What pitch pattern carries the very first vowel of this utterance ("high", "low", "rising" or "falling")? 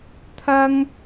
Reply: high